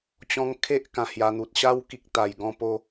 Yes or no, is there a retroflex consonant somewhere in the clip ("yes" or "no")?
no